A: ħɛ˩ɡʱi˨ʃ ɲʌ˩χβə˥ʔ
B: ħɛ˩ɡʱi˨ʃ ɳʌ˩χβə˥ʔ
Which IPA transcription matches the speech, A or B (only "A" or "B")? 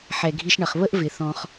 B